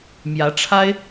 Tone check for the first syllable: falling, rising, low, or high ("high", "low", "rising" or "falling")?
rising